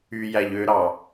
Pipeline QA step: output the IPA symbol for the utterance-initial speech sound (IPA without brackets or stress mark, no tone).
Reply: y